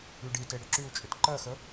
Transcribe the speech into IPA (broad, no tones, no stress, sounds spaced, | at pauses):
y ɖ i t e ɽ ʏ ǁ y u̯ t͡ʃʼ ʏ t ǃ ɜ x ə